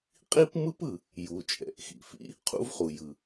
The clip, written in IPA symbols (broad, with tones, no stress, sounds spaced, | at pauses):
qʼ i˥ p m ɯ˥ p ɯ˩ | j u˩ t͡ʃʼ ɛ̰˩ ʔ x ḭ˩ f ḭ˥ | qʰ ṵ˥ v χ u˩ j ɯ˩